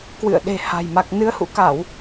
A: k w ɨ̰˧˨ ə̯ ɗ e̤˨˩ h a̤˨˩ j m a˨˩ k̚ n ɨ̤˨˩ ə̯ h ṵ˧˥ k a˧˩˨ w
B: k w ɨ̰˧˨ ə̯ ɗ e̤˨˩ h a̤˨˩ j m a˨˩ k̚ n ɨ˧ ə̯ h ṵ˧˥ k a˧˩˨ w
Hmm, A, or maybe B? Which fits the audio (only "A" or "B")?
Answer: B